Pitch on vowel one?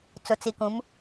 low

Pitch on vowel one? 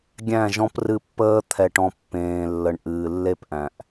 falling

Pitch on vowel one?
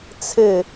falling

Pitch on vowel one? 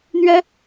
high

